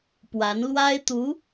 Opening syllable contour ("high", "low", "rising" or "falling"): rising